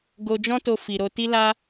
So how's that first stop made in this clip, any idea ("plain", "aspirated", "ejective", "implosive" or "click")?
plain